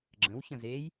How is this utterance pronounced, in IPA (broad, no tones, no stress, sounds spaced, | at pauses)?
ɡ͡ǁ ə̃ w ç ə̃ z e j